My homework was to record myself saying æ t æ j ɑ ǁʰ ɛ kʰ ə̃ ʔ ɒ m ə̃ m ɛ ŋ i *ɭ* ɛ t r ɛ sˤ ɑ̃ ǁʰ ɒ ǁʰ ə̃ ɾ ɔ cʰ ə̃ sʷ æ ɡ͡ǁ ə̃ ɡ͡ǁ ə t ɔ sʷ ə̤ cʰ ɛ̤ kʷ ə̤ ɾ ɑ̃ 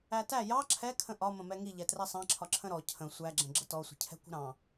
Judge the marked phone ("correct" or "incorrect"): incorrect